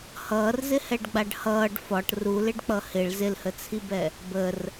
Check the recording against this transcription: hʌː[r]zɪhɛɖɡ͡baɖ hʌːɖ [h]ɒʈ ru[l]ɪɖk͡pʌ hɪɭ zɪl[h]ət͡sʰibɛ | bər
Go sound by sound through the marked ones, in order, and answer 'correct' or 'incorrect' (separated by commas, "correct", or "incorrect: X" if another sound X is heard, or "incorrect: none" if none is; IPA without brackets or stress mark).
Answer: correct, incorrect: f, correct, correct